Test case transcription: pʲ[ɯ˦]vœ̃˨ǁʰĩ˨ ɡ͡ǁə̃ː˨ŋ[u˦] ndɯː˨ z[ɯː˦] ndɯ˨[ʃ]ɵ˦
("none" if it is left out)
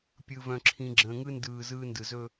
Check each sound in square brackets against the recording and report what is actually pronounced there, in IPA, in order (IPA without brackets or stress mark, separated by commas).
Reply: ɯ˨, ɯ˦, ɯː˦, z